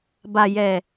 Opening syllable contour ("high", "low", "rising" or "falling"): low